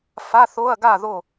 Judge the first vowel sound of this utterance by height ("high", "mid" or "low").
low